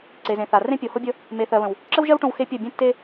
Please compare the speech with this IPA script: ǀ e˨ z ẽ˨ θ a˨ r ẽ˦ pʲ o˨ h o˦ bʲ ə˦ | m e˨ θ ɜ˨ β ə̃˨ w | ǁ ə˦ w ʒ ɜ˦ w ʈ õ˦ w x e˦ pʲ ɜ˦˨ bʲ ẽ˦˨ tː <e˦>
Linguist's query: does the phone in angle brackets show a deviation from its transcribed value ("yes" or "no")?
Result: no